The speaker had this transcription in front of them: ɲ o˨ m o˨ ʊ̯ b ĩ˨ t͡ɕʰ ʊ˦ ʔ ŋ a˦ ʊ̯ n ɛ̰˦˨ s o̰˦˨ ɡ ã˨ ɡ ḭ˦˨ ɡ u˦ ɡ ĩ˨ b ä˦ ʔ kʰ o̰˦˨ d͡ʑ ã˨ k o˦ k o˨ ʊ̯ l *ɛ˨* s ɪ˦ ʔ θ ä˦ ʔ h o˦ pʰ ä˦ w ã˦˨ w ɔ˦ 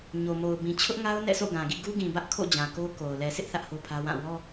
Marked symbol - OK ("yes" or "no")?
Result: yes